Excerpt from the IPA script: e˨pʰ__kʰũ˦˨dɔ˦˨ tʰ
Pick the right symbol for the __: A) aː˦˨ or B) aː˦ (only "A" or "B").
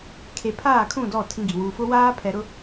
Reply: A